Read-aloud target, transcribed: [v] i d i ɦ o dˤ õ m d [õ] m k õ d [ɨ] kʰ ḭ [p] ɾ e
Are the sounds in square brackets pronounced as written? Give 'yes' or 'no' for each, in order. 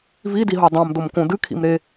yes, no, yes, no

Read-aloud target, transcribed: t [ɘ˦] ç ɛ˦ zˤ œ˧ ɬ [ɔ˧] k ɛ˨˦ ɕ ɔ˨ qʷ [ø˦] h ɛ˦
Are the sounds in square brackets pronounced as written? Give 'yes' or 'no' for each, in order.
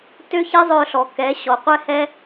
no, no, no

